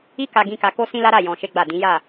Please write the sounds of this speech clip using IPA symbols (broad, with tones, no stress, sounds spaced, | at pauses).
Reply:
i˦ k a˧ ɡ ĩ˧ k a˧ k o˦ s ĩ˦ l a˦ ɾ a˦˨ j ɔ̃˧ ʃ e˦ ɡ͡b a˦˨ d ĩ˨˦ j a˦˨